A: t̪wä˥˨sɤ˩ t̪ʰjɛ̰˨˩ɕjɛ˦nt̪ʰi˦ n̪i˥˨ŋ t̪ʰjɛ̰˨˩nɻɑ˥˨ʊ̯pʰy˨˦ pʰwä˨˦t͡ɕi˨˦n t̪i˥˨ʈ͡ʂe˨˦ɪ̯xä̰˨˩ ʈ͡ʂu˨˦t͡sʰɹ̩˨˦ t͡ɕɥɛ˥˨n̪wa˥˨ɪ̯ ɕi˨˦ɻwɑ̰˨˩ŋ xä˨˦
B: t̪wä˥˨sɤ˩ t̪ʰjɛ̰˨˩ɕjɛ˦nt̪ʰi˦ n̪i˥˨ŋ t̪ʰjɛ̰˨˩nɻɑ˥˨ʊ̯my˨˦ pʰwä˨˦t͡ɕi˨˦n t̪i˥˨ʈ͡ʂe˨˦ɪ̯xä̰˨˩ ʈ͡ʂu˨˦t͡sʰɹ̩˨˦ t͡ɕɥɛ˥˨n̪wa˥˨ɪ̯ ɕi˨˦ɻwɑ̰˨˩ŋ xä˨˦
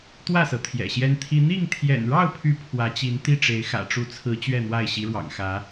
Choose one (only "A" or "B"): A